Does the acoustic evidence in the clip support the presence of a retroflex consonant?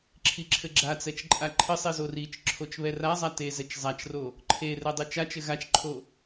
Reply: no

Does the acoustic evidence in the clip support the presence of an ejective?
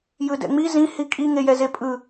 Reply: yes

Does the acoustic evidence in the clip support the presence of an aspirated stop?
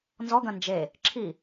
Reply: yes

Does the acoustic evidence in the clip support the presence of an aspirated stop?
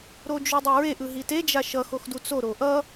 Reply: no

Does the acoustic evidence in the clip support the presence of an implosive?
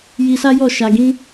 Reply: no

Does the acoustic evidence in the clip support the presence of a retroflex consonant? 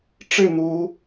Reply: yes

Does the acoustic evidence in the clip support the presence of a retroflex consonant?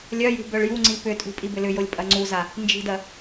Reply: yes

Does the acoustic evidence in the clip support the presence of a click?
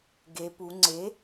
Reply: yes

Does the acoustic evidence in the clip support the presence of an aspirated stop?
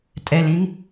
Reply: no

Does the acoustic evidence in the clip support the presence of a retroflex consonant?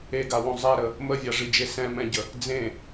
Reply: yes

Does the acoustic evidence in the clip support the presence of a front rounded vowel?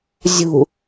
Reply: no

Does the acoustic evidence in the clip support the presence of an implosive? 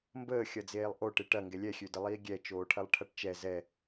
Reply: no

